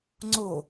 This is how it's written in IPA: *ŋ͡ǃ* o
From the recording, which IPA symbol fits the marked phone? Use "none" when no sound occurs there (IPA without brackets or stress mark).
ŋ͡ǀ